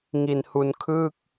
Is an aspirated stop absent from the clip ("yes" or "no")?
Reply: no